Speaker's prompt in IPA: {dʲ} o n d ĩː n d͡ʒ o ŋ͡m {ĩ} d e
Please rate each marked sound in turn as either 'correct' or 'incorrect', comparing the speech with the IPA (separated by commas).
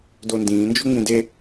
incorrect, correct